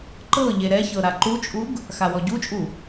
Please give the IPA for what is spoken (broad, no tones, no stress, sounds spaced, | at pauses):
ǃ ɤ ʎ e ɾ ɛ ç ɤ ɾ a ǃ u t͡ʃʼ u ɡ | x a w ɔ ɟ u t͡ʃʼ u